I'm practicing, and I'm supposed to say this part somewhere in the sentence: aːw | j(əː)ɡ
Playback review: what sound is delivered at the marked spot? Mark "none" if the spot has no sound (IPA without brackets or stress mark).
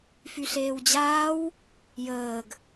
əː